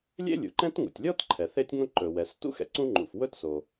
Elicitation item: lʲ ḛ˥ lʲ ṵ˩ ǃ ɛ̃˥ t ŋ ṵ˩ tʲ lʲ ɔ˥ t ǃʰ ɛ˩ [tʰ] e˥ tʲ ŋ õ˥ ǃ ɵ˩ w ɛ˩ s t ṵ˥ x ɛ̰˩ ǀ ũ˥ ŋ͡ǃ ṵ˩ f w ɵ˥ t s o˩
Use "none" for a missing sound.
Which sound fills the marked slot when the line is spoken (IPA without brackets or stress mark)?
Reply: θ